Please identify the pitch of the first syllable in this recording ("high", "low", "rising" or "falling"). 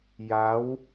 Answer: rising